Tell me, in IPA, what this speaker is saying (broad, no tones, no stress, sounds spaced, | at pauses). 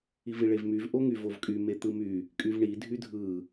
i v i ɭ e v m y v ʔ o ŋ y v o v kʼ y m e t̪ ɯ m y | kʼ y v ɳ i dʱ y dʱ ɯ